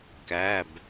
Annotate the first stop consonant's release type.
plain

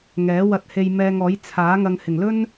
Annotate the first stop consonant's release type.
plain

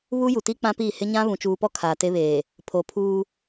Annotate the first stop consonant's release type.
plain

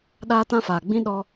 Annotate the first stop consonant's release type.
implosive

